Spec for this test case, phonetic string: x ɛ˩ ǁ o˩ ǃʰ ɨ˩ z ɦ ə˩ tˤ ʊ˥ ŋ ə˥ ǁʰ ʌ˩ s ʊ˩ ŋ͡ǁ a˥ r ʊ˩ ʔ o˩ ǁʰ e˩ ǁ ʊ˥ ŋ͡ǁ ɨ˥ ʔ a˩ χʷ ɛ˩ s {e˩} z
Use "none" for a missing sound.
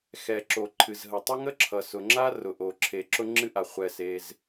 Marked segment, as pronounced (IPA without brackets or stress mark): e˩